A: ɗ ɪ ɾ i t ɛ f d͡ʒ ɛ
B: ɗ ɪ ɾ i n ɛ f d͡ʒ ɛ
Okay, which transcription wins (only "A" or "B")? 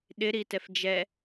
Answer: A